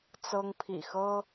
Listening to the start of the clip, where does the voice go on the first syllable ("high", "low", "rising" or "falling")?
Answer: high